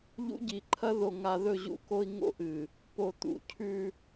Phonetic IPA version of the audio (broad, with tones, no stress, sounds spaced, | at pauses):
ʎ ṵ˦ ɟ i˨ ǃʰ ɐ˦ ð o˨ ŋ a˨ ð ɵ˦˨ ʑ ṵ˦˨ k o˦ i̯ ŋ o̰˦ ʔ ɨ˨ | p o˨ t̪ ṵ˨ cʰ ʉ˦